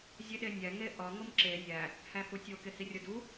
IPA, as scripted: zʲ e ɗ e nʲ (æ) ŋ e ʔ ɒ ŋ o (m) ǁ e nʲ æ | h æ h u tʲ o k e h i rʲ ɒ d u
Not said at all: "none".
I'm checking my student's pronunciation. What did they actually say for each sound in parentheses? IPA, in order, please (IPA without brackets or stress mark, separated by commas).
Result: æ, m